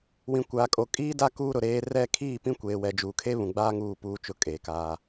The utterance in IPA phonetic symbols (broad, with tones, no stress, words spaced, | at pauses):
wĩ˨kʷaː˨kʼo˨ kʼiː˦da˦ kuː˦ɾʊ˨ɾeː˦ rɛ˦˨ kʰiː˦˨pĩ˦kʷeː˨wɛ˨ d͡ʒuː˨kʰe˦ βũ˨ɡ͡baː˦ ŋuː˦˨ puː˦t͡ʃʊ˦˨ kʼeː˨kaː˦